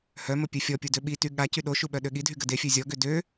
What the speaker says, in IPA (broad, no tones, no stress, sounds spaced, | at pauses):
h œ m ə pʲ ø fʲ ɔ pʲ u d ø ɓ i t y ɠ a c y ɗ o ʃ u ɓ œ ɗ ø ɠ i dʱ y ɡ ə d e fʲ ø zʲ ɔ ɡ ø d ø